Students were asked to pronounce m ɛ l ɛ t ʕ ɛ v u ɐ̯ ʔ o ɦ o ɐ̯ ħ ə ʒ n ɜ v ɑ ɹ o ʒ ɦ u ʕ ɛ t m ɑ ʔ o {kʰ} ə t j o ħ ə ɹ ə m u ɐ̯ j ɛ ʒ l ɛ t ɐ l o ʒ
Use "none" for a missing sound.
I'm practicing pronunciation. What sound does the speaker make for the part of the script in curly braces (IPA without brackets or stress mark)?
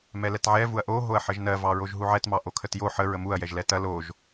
kʰ